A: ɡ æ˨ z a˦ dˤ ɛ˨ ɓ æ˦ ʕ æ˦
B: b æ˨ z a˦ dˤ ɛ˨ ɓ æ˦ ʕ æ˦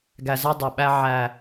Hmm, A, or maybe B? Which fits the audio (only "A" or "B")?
A